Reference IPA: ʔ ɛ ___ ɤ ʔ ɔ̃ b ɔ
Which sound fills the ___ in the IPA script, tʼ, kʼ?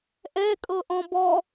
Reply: kʼ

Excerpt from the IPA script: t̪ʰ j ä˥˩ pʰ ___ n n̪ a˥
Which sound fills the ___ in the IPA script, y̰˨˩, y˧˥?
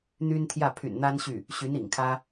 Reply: y̰˨˩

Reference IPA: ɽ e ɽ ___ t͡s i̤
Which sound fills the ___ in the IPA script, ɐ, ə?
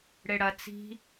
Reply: ɐ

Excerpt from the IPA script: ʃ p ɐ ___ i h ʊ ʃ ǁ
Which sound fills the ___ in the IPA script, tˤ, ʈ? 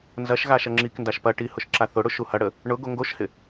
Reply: ʈ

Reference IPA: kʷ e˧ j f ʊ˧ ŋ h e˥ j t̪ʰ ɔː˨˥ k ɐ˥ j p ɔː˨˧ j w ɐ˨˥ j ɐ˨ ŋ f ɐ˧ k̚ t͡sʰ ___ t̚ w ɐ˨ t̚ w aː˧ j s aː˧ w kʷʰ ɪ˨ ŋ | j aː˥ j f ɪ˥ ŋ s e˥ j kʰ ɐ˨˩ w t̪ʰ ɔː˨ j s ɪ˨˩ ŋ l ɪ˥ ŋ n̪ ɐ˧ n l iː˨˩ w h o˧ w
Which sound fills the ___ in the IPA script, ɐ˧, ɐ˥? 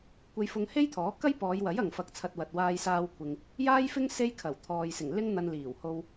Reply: ɐ˧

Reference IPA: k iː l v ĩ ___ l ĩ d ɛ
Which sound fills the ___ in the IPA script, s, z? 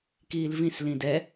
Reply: s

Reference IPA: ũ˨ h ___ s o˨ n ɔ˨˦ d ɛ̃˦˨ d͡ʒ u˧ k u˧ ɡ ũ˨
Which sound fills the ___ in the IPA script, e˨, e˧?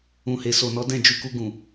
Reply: e˨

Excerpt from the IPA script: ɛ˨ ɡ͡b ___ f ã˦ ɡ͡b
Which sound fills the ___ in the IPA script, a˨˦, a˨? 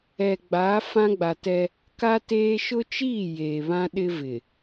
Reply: a˨˦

